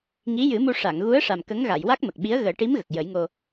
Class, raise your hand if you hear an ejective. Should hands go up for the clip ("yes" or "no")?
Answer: no